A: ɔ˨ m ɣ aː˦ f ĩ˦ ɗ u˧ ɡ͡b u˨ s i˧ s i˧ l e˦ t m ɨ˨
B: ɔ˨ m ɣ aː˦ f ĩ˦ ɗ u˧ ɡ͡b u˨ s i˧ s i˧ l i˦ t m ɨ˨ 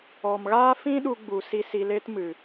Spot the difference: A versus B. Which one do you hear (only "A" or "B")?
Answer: A